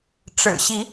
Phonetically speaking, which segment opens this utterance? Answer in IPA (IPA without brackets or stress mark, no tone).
ʈ͡ʂ